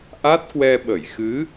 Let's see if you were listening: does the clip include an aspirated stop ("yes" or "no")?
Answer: no